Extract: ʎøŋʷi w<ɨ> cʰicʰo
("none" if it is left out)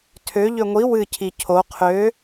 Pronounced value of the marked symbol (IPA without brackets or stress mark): ɨ